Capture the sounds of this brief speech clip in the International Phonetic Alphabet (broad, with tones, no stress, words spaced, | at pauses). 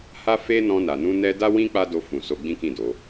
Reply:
ha˦fe˦nɔ̃˧ na˨nũ˧nɛ˧da˦ wĩ˦ k͡pa˦do˧fũ˨so˧ ɡ͡bĩ˦kĩ˦˨do˨˦